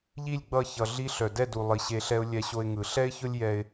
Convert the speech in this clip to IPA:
ʎ i˦˨ lʲ ɡ͡b ʌ˦˨ ç ʌ˧ ɮ i˦ ɬ œ˨ d ɛ˦˨ d u˨ lˠ i˨ ɕ e˧ ɬ ɛ˦ ʊ̯ lʲ ɛ˧ ɕ o˧ ɪ̯ ŋ ɯ˨ ɬ ɛ˦ ɪ̯ ç ʊ˦ lʲ j ɛ˧ ɪ̯

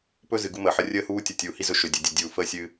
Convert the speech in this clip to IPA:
p ɵ˦ z ɨ˨ ɡ u˦ m əː˨ ħ ə˦ rʲ əː˦ h uː˦ tʲ ʌ˨ tʲ uː˨ h i˦ z ɵ˧ ʃ ɵ˨ dʲ ɵ˨ dʲ ɨ˨ dʲ uː˨ f əː˦ sʲ ɨː˧

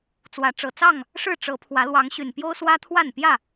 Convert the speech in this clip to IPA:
t͡s w ä˨˦ ʈ͡ʂ ɤ˨˩ t͡s ɑ˥˨ ŋ | ʂ ɻ̩˥˨ ʈ͡ʂ ɤ˨˦ pʰ w ä˨˦ l w ɑ˨˦ ŋ ɕ y˨˩ n p j o˦ ʊ̯ s w ä˦ t̪ʰ w a˥˨ n p j ä˥˨

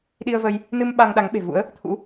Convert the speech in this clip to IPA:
ɗ i˧ ə̯ v ə˧ j | n ɨ˧ m ɓ a˧ ŋ ɗ a˨˦ ŋ ɓ e̤˨˩ v ṵ˧˥ ə̯ | t̪ʰ ṵ˧˥

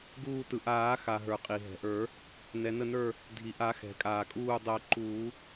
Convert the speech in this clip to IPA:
ɡ uː˧˩ t ɯ˩ ʔ aː˨˩˦ x a˩ ɦ ə˞˩ qʼ i˩ ɦ ɛ̤˩ ʔ ə˞˨˩˦ | n ɛ˩ n ə˧˩ n ə˞˧˩ | dʱ i˩ ʔ a˨˩˦ x ɛ̤˩ kʼ aː˩ kʼ uː˧˩ dˤ əː˨˩˦ ǃ uː˨˩˦

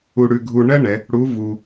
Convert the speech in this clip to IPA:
u˥ ɽ ʉ˥ ɡʱ u˥ ɳ ɜ˥ ɳ ɛ˩˧ | ɽ u˧˥ v u˧

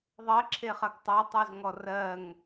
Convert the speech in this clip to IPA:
ðˤ ɜ ǁʰ e χ ɐ ɡ tˤ ɜ tˤ y z ŋ ɔ r ɜ ŋ

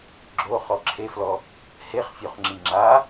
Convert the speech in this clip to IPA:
ɡ͡ǁ o χ ɔ ǁʰ e f l ɔ | h e χ fʲ o χ ŋ͡ǁ i ŋ͡ǁ a

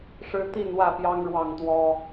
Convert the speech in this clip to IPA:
ʂ ɻ̩˦ t̪ i˥˨ n w ä˥˨ p j ɑ˦ ŋ ɻ w ɑ˥˨ ŋ t̪ w ɔ˦

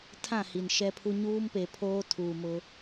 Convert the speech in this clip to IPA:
tʰ ã˦˨ h i˨ n ʃ ɛ˦ pʰ u˦ ɲ uː˦ m p e˨ pʰ oː˦ tʰ uː˨ m ʊ˦

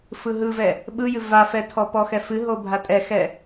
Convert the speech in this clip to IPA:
f ɯ ɦ ɯ v ɛ | ɓ ɯ j ɨ v a f ɛ tʰ ɔ p ɔ x ɛ f ɨ ɦ o bʱ a tʼ ɛ x ɛ

